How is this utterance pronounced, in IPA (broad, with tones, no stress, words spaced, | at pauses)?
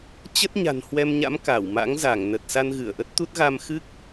t͡ɕə˦˥t̚ɲa̤˨˩n hwɛ˧mɲa̰˧˥m ka˧˩wma̰˧˥ŋza˧˩ŋ nə˨˩t̚sa˧n ɣɨ˧˩ə̯ʔə˦˥t̚t̪u˦˥t̚ɣa˧m xɨ˦˥k̚